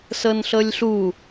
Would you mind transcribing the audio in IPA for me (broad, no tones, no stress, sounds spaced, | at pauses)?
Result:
s ɤ n ɬ ɤ lʲ ɬ u